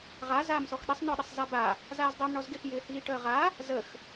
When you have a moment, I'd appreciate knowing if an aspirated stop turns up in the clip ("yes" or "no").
no